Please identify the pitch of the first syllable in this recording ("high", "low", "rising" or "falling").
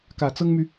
low